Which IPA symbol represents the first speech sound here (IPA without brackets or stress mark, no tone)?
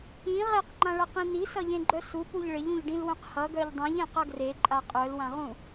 ĩ